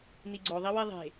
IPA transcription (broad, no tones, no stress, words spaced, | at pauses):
niɡ͡ǀo ðˤiweðˤe̤